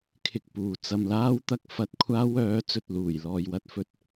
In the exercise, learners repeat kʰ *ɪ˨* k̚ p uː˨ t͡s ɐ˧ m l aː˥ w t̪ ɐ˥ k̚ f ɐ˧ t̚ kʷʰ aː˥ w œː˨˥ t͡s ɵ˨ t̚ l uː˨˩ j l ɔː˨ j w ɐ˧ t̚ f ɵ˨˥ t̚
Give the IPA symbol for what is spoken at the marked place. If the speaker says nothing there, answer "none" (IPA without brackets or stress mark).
ɪ˧